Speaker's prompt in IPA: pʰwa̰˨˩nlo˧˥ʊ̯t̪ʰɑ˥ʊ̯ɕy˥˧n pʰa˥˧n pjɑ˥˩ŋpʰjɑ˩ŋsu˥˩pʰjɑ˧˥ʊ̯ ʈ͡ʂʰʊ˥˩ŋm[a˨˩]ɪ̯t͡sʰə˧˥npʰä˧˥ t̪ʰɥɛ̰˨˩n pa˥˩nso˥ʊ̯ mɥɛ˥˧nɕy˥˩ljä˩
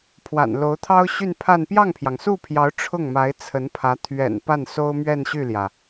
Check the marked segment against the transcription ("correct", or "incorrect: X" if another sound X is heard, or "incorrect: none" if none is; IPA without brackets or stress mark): incorrect: a˧˥